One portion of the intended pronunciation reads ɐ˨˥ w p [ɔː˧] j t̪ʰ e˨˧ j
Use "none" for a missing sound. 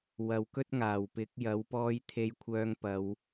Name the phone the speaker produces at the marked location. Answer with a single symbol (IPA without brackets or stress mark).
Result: ɔː˧